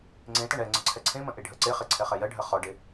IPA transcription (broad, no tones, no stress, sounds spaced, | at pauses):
ŋ͡ǀ ẽ t ɐ ɳ ɛ ŋ͡ǀ ə ǀʰ ɛ ǀʰ ẽ m ə̃ ʔ e ɖʱ ɜ ǀ e χ e ǀʰ ɛ χ ɛ j ɜ ɖʱ ɜ χ ɔ ɖ e